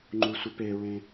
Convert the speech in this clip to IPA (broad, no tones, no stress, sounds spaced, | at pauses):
ŋ͡ǃ u sʷ i p e ɹ ẽ